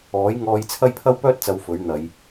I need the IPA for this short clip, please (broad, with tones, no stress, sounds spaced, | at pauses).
ɔː˨˥ j ŋ ɔː˧ j t͡sʰ ɐ˥ j pʰ ɐ˥ w p œː˥ t̚ t͡s ɐ˨˧ w f ɵ˨˥ ɥ n̪ ɐ˨˧ j